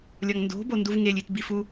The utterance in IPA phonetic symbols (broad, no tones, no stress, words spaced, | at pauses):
lʲɒŋndo̤ bonduvŋelʲ itbifu